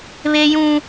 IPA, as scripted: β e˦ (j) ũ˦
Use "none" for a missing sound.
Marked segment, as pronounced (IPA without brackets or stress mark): j